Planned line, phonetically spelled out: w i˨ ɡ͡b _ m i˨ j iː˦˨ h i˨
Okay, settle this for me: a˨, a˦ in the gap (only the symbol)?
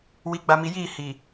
a˨